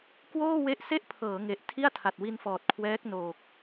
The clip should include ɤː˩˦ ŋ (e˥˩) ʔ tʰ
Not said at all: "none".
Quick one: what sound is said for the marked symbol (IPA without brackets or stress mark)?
e˨˩